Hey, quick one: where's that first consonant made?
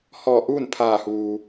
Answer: throat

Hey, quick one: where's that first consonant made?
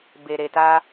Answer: lips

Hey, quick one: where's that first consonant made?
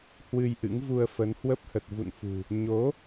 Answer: throat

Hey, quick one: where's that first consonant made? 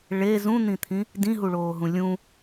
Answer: retroflex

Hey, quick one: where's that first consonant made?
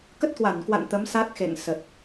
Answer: velum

